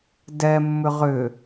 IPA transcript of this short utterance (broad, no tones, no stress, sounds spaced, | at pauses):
d ɛ mː ʏ ʁ ʏ